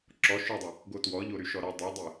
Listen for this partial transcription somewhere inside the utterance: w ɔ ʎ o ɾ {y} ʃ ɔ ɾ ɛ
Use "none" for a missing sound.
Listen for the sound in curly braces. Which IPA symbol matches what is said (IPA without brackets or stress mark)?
y